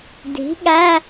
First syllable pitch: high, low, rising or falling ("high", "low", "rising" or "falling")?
rising